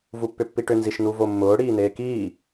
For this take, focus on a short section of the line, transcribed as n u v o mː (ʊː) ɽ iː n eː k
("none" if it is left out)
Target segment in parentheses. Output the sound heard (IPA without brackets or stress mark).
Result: ʊː